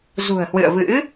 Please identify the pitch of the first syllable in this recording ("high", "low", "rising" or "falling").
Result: low